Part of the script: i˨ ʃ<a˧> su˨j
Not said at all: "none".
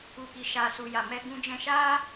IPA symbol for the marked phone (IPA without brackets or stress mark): a˨